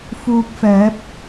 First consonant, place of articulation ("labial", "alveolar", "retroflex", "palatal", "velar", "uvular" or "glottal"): labial